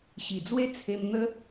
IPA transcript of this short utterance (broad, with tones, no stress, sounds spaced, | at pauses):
ɕ i˨˩ d͡z w e˦ t͡sʰ e˧ m n̪ ə˦